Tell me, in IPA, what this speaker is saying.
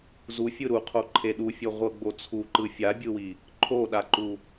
z u fʲ ɯ ɾ u qʰ o ǃʰ e ɗ u fʲ ɤ ʁʷ ɤ ɡ͡b o t͡sʰ u ǃ ɯ fʲ a bʲ ɯ w i | ǃʰ o ɗ a ǃ u

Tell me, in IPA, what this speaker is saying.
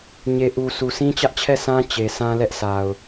ɲ e˨ ʔ u˨ sʰ u˨ s ĩ˦ t͡ɕ ä˦ ʔ t͡ɕʰ ɛ˦˨ s ã˦ t͡ɕ e˨ sʰ ã˦ l ɛ˦ ʔ s a˨ ʊ̯

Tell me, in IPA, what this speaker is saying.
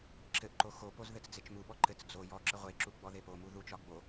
ǁ ɘ ʔ ǃ o x o p o z ð ɘ t͡s d͡z e t͡ʃ m u ɓ ɔ ǃ ɘ t͡s d͡z o j ɔ ǁ ə ʁʷ e ǁ u ɡ͡b ɔ ð e p o m u ð u t͡ʃ ɒ ɡ͡b o

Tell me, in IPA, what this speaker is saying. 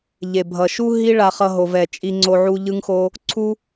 ʎ e˨ bʱ ʌ˨ ʃ u˦ ɦ i˦ ɭ a˧ χ ʌ˧ ɦ o˨ v ɛ˨ t͡ʃʼ i˧ ŋ͡ǀ o˧ ʕ u˧ ʎ ɯ˦ ŋ x o˦ | ǀʰ u˦

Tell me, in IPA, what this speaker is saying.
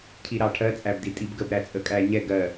cʰ i ɾ ɑ ʈʰ ɜ t͡sʼ æ b d i tʼ i b ɡ ə b ɾ æ t͡sʼ ə kʼ æ ɲ ɛ ɡ ɜ

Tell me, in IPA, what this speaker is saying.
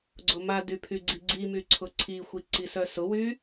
ɡ͡ǀ ʊ m a d y pʰ y ɡ͡ǀ i ɡ͡ǀ i m y ǀʰ ʊ ǀʰ i xʷ i ǀ i s œ s ʊ w y

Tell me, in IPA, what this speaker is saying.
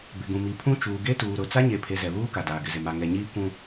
b ɪ˨ ɡ ũ˨ m i˨ pʰ ũ˦ t͡ʃ uː˨ ɡ e˦ t uː˨ ɾ ʊ˨ t͡s a˦ ɲ e˨ pʰ e˨ z ɛ˨ β uː˦ k a˨ d aː˨ ɡ ɪ˨ z ɪ˨ m a˨ ŋ ɛ˨ ɲ iː˦ kʷ ũ˦

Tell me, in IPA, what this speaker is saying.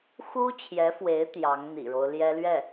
x u˥ t͡ɕʰ j ɛ˧˥ f w e˧˥ ɪ̯ t̪ j ɑ˧˥ ŋ n̪ ḭ˨˩ ɻ o˦ ʊ̯ l j ɛ˥ l ɥ ɛ˥˩

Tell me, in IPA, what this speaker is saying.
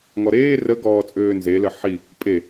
ŋ ɔ ɾ eː r ə ɡ ɔː t͡sʼ øː n z e l ə ħ i | pʼ e

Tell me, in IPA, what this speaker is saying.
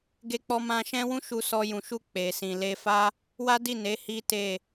ɡ e˧ k͡p ɔ˧ m ã˧ ʃ ɛ̃˦ w ũ˦ ʃ u˧ s ɔ˧ j ũ˨ ʃ u˧ k͡p e˨ s ĩ˨ l e˧ f a˦ | w a˦ d i˦˨ n e˨˦ h i˦ t e˦˨

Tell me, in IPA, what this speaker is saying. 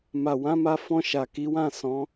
m a˨ w ã˨˦ m a˧ f ɔ̃˧ ʃ a˨ k i˨˦ w ã˦˨ s ɔ̃˨˦

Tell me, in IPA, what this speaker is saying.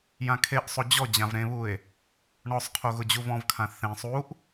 j ã kʰ e ʔ sˤ o d͡ʑ ɔ d͡ʑ ã v ɾ ẽ β u e̯ | ɳ ɔ sˤ qʰ o ɣ ʊ d͡ʑ u v ɔ̃ v kʰ ã θ ẽ sˤ u ʔ

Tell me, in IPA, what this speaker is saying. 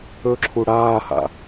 ɵ ǁʰ u ɽ aː h a̰

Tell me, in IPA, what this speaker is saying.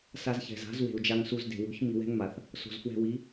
s a˧ z ç ɛ̤˨ z a̤˨˦ z w e̤˨ u̯ d͡ʒ a˧ ŋ s u˧ z d e̤˨ w o̤˨˦ ç m i˧ w ɛ̤˦ ŋ m a˨ θ | s o̤˨ z f w ɛ̤˧ w i˨˦

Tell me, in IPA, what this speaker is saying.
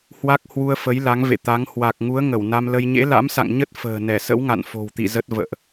h w a˦˥ k̚ h w u˧ ə̯ f ə˨˦ j l a˨˦ ŋ v ḛ˧˨ t̪ a˨˦ ŋ h w a˨˩ k̚ ŋ u˨˦ ə̯ ŋ ə˧˩ w n a˧ m l ə˧ j ɲ ḛ˧˥ l a̰˧˥ m s a̰˧˨ ŋ ɲ ə˦˥ t̚ f ə̤ː˨˩ n ɛ˧˩ s ə̰˧˥ w ŋ a̰˧˨ n f o̤˨˩ w t̪ ḭ˧˨ z ə˦˥ t̚ v ə̰ː˧˨ ʔ

